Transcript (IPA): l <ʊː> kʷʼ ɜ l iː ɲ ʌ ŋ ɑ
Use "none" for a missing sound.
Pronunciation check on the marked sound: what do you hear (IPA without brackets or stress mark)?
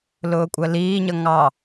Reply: ʊː